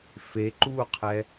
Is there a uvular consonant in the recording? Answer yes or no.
yes